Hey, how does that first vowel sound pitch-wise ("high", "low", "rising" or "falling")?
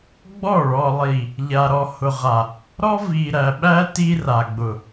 falling